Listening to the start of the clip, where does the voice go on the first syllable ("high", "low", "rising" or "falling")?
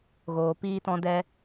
low